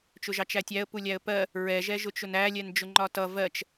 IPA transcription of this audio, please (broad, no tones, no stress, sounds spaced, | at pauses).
t͡ʃ ʊ ʒ ɑ t͡ʃ æ tʲ æ ə̯ p u lʲ æ ə̯ p ɜ | ɹ ɛ ʒ ɛ ʒ ʊ t͡ʃ ʊ n æ lʲ ɛ n d͡ʒ ʊ ŋ͡ǃ ɒ t ʌ v ɜ t͡ʃ